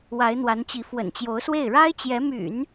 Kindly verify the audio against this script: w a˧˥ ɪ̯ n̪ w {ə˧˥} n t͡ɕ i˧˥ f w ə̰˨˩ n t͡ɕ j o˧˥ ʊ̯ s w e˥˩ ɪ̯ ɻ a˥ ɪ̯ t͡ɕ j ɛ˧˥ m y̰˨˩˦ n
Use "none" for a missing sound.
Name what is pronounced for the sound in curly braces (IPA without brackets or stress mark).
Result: a˧˥